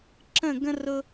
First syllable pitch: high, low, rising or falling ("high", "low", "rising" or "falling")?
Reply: falling